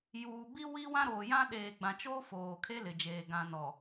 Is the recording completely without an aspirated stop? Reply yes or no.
no